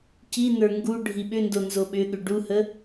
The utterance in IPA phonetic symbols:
c i n ə˞ ŋ ɡ u ɖʱ i ɓ ʏ n d o n z o ɓ ʏ ɠ ʏ ɖ u h ə

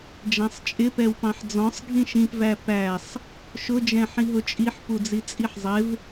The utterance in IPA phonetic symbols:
d͡ʒ æ̃ sˤ t͡ʃʼ ɪ p ɛ w p ɑ̃ ħ d͡z ɔ̃ sˤ ɡʱ ĩ ʃ ĩ p v æ p æ sˤ | ʃ ʊ d͡ʒ ɛ̃ ħ ĩ ɦ ʊ t͡ʃʼ i ħ p u d͡z i t͡sʼ i ħ zˤ ɪ v

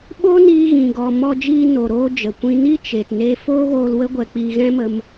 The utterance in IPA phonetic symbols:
ɓ o˦ n iː˧ ɣ ĩ˨ ɡ ɔ˨ m ɔ˧ d͡ʒ iː˧ n o˨ ɾ oː˧ d͡ʒ ə˨ kʷ ĩ˧ n i˦ t͡ʃ e˨ t n e˧ f oː˦ ɣ oː˧ l w ə˦ ɡʷ ɛ˧ k͡p iː˧ ɣ ɛ̃˦ m ə˧ m

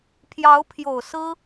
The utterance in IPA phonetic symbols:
pʰ j ɑ˧˥ ʊ̯ pʰ j o˨˩ ʊ̯ s ɹ̩˥

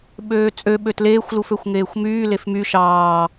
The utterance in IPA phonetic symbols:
ɓ øː t͡sʼ ø ɓ ø t l eː xʷ l u f ø xʷ ŋ eː xʷ m yː l e f m y ʃ ɑː

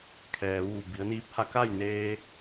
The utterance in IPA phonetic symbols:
kʰ ɛː˩ ʋ uː˧˩ b i˩˧ ə̯ n iː˧˥ p̚ h a˧˥ k a˥˨ j n eː˧

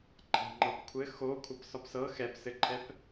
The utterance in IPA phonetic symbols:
ǃʰ a̤ ŋ͡ǃ ɤ p kʷʰ ɘ x o kʷʰ ʌ p s ɒ p s ɤ x ɛ p s ɘ ǃʰ ɛ p

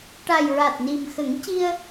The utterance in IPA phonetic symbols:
ʈ a˨˩ j ɹ a˨˩ t̚ n i˨˩ m x ə˨˩˦ ŋ c i˧ ə̯

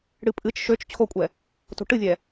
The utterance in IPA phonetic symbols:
ɽ ɨ pʼ ɨ t͡ʃ ʃ ø t͡ʃ t͡ɕʰ o kʷʼ ɛ | t o̤ ʈ ɨ vʲ ɛ

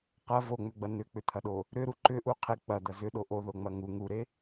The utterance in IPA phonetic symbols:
q ɐ v o ŋ͡m ʏ ɡ͡b ɐ n ʏ k͡p ʏ t̪ʰ ɐ ɗ o | ɾ ʏ ɾ u ǃ ʏ ʔ u qʰ e k͡p ɐ d̪ ɐ z ʏ ɗ o ʔ o ð o ŋ͡m ɐ ŋ u ŋ u ɾ e

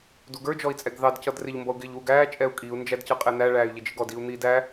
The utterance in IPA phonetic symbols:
d u ɡ ə˞ d͡ʒ ɔ i̯ t͡sʼ ɛ ɡ ð ɑ d c ʌ d r ɪ ʎ m b ʌ u̯ ɡ ɪː ʎ w u ɡ æː t͡ʃʼ ɛ u̯ kʼ i u̯ n d͡ʒ æ d c ʌ qʼ ɛ n̪ æ ɭ æː y̯ ʎ ɪ d͡ʒ ɪ ɡ ɔ d i u̯ n̪ iː d æ

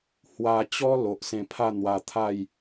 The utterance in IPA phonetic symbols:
h w a˧ t͡ɕ ɔ˦ l o˨ ʔ s ẽ˧ pʰ a˥˧ n̪ w a˧ t̪ʰ a˥˧ j

